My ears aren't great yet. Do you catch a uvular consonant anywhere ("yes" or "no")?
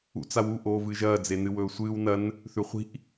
yes